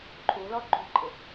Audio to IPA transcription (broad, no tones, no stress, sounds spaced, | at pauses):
ǃʰ u l ɔ ǃ ṳ ǃʼ ɪ